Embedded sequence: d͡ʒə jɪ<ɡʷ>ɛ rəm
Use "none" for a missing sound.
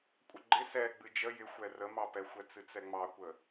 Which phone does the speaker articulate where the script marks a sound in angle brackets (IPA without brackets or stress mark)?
xʷ